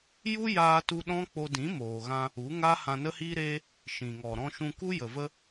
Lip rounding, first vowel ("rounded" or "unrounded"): rounded